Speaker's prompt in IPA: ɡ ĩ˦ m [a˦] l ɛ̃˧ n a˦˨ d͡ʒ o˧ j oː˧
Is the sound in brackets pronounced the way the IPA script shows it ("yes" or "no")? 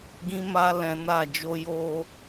yes